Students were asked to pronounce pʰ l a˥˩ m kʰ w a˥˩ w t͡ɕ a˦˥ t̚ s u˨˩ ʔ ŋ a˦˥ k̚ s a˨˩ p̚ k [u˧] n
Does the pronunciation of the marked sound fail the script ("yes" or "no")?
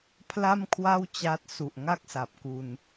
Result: no